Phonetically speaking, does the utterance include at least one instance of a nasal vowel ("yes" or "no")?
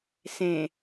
yes